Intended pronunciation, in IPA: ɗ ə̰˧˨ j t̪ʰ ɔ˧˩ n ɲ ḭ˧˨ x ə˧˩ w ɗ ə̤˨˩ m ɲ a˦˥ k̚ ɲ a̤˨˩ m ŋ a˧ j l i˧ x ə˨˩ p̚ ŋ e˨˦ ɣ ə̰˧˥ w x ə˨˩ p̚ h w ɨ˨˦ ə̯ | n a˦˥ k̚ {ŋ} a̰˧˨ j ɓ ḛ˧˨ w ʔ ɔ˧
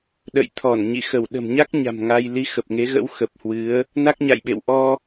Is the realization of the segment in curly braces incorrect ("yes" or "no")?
yes